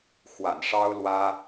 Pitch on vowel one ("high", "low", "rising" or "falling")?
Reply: low